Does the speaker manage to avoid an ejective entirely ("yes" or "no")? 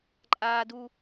no